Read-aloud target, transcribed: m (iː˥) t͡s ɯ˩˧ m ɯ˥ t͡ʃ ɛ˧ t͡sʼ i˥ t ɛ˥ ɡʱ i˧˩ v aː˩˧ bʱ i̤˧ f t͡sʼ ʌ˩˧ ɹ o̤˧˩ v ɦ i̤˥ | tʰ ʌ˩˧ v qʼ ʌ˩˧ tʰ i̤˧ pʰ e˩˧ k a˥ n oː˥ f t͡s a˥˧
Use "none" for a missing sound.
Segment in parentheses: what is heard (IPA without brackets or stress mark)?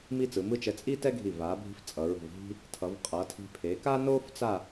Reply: iː˥